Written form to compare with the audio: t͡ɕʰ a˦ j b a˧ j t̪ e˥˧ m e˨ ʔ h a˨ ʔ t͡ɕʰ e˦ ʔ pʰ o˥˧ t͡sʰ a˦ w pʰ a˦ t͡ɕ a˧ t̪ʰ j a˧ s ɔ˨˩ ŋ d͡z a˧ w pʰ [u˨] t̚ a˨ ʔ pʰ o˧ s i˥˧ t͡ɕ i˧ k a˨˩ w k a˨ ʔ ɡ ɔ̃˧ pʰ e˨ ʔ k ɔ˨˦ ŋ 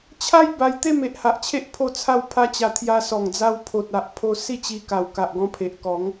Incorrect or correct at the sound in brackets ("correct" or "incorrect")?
incorrect